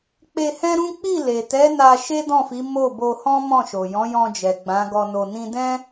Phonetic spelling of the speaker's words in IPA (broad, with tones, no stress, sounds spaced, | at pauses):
k͡p e˧ h ɛ̃˦ ɾ ũ˦ k͡p i˦˨ l e˨ t ɛ˨˦ n a˧ ʃ e˦ d ɔ̃˦˨ f i˨˦ m o˦˨ b o˧ h ɔ̃˦ m ɔ̃˦˨ ʃ o˨ j ɔ̃˨˦ j ɔ̃˧ d͡ʒ ɛ˨ ɡ͡b ã˨˦ ɡ ɔ˧ n o˧ n ĩ˦ d ɛ̃˦